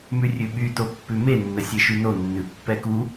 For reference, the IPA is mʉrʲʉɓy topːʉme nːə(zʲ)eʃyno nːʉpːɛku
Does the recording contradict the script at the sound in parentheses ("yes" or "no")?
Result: yes